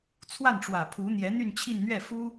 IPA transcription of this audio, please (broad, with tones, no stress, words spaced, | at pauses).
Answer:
t͡sʰwa˥˩nʈ͡ʂwä˨˩ pʰu˧˥n̪jɛ˧˥ n̪y˥˧nt͡ɕʰi˥˧nn̪ɥɛ˥˩ fu˥